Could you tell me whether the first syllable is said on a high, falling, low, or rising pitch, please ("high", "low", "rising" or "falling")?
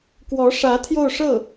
rising